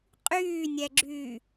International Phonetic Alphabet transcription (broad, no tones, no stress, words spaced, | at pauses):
qʼyːnʲɛɡ͡ǁyː